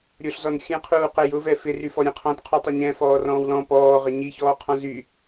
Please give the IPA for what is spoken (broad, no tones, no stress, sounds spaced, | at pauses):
ɾʲ ʊ ɬ z ɔ n xʲ ɛ̃ qʰ uː q ɛ j ʊ v ɛ f ɪ r y f ɔ ɾʲ ɛ̃ qʰ ɔ̃ t qʰ u tˤ ɪ ɲ ɛ̃ f ɔː r ɔ̃ː w l ɔ̃ p ɔː ʁ ɪ ɲ i ç ɔː qʰ ɔ̃ z y